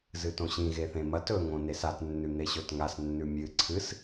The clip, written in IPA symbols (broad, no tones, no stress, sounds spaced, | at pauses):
z ɨ t õ ɕ ĩ ɣ e θ ẽ m ɐ t ɵ ŋ õ n e s a t nː ʉ n̪ e ɕ ɵ t ŋ a s nː ʉ mʲ ɨ ǀʰ ɨ s